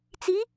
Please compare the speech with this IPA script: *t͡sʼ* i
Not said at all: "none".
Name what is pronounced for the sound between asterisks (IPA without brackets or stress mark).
t͡s